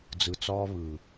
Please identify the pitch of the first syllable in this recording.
low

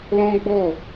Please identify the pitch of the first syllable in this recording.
high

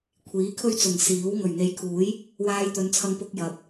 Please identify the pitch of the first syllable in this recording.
rising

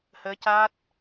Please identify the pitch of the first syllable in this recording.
rising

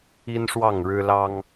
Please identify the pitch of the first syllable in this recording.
high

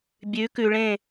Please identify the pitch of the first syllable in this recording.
rising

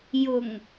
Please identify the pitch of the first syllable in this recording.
low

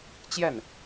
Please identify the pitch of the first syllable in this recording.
falling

